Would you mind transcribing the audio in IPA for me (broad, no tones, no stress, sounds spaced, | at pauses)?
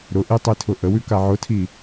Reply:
ɾ ʊ ʔ i tˤ i tʰ ʊ ʔ ə w ʉ k a ʕ ʊ tʰ i